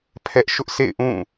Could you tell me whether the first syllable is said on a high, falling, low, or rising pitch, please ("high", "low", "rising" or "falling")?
high